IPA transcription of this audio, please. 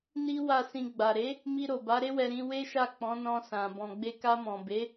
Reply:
n i˦ w a˦˨ s ĩ˧ ɡ͡b a˨ ɾ e˨˦ | m i˧ ɾ o˨ b a˨˦ ɾ e˦ w ɛ˧ ɾ ĩ˧ w e˦ ʃ a˦˨ k͡p ɔ̃˨˦ n ɔ̃˧ s ã˨ b ɔ̃˨ ɡ͡b e˧ k a˧ m ɔ̃˨ b e˨˦

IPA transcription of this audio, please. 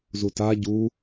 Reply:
z u t a ɟ u

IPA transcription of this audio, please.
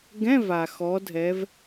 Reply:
ɡ ɛ̃˧˥˧ v a˩ x ɔ˩˧ dʱ ɛ˩˧ v

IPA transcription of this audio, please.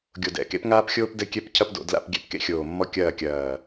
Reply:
ɡʲ o˨˩ d ɛ̰˨˩ k ḛ˦ p ŋ aː˦ p xʲ oː˦ p d ɘ˦˨ kʲ ɛ˦ p cʰ ɐ˦ p d o̰˩˧ d l a̰˦˨ p ɡʲ ɛ̰˦ p k ḛ˦ xʲ oː˨˩ mː ɔ˦ kʲ ɐː˦˨ kʲ ɐː˨˩

